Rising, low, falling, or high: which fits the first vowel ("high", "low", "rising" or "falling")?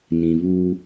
low